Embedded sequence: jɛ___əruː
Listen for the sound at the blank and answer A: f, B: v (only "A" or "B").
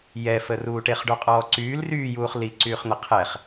A